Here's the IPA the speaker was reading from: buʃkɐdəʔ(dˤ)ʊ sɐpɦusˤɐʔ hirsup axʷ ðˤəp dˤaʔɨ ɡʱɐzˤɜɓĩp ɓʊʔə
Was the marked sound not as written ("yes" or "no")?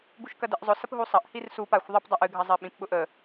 yes